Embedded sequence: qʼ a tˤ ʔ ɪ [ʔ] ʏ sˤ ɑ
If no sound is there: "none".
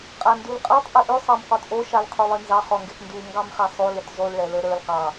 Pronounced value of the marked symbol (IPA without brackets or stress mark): ʔ